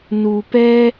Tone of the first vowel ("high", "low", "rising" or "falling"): low